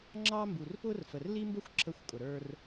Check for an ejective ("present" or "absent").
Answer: present